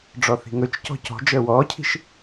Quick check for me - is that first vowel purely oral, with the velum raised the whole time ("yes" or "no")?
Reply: yes